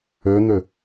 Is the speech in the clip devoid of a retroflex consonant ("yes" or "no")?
yes